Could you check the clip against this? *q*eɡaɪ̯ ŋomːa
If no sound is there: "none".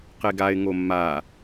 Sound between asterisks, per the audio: q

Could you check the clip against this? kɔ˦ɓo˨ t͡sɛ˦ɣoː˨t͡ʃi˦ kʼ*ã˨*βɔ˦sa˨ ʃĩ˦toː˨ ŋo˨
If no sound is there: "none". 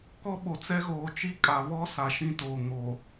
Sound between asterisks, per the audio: a˨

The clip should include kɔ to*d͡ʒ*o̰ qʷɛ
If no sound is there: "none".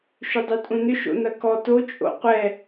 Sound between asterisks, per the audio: t͡ʃʼ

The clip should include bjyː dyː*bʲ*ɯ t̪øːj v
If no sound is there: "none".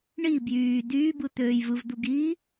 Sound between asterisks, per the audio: b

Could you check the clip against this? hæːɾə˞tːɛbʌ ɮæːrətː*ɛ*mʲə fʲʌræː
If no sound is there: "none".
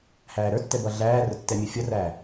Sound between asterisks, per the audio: ɛ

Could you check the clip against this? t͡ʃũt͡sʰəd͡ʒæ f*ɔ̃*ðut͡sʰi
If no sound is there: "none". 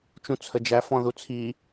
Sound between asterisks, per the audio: ɔ̃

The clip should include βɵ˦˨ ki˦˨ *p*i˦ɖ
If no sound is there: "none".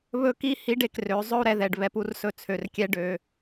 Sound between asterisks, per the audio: h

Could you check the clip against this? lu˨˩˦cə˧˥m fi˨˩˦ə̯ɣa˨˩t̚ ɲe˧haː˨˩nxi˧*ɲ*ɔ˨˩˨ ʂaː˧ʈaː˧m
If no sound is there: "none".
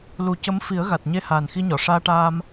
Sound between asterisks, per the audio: ɲ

